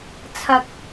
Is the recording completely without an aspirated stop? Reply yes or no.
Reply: no